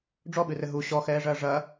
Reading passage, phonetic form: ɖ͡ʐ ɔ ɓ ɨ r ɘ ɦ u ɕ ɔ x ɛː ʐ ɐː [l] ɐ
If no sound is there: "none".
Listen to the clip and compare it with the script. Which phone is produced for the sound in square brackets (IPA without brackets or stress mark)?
ʐ